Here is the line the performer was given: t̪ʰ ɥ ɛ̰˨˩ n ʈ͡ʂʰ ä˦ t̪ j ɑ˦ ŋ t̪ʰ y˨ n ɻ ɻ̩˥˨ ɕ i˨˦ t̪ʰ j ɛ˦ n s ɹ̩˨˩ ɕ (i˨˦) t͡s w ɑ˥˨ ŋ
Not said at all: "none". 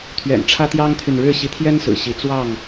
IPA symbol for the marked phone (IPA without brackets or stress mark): i˨˦